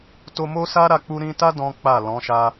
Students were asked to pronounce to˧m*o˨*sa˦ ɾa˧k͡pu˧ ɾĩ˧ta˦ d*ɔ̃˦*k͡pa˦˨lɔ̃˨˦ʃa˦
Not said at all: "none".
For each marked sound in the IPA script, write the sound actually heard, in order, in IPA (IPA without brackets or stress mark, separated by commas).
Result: o˦, ɔ̃˦